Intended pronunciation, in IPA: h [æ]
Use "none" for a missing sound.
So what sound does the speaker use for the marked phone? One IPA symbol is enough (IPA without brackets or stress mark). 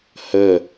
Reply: ə